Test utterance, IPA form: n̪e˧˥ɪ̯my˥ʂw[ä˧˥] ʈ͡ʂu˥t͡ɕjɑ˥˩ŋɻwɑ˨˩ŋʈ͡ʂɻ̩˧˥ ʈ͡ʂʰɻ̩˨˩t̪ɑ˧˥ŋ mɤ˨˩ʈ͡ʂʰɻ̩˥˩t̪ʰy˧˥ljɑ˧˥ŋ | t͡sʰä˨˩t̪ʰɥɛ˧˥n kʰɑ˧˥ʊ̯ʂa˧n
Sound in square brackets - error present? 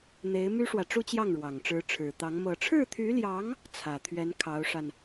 yes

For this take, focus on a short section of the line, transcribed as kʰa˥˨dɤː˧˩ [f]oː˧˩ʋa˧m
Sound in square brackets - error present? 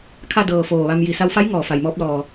no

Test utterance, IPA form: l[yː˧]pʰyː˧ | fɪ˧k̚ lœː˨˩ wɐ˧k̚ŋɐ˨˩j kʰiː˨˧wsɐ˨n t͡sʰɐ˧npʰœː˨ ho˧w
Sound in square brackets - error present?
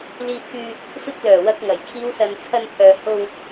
yes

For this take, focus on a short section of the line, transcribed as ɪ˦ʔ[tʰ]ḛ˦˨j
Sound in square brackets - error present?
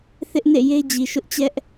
yes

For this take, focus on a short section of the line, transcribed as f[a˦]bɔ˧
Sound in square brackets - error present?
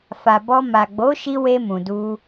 yes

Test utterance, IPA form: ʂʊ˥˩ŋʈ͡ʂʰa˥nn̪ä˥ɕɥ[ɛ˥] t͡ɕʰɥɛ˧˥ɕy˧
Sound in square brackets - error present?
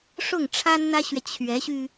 yes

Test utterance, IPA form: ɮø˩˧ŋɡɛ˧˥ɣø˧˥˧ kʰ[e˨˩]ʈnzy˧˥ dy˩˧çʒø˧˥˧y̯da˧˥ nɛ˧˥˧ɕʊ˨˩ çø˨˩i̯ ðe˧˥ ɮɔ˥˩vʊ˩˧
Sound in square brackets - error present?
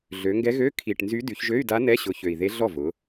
yes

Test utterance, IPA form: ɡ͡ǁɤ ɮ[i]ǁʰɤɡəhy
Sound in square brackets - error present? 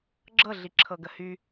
no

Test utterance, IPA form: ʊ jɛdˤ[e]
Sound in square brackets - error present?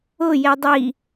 yes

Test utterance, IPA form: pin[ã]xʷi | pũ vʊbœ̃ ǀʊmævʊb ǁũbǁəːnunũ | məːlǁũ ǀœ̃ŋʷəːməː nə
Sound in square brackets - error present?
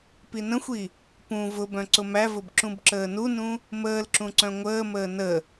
yes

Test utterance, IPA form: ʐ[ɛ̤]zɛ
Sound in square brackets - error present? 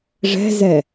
no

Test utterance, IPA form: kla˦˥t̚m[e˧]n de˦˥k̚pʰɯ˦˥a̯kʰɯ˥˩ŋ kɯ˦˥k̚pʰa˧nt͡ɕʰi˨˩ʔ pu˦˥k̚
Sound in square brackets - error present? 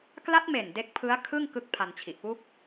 yes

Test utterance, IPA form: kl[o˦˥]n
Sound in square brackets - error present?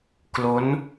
no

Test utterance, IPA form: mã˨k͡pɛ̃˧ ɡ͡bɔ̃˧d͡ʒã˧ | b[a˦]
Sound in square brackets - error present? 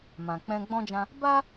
no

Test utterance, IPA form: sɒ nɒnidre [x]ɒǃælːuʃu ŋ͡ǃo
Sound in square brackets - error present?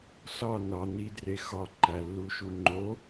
no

